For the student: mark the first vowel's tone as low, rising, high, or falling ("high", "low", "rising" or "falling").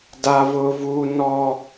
high